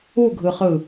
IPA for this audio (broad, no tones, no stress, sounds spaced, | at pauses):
u ɡʱ ɯ χ ɯ